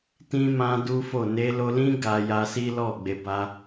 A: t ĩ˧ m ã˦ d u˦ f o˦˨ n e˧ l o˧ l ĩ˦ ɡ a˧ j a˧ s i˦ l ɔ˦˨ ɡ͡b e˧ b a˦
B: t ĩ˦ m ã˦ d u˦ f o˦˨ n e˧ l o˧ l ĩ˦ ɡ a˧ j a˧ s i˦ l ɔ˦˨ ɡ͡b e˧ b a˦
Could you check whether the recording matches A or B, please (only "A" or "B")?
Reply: B